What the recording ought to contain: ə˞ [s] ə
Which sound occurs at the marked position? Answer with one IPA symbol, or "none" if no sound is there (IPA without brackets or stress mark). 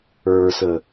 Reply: s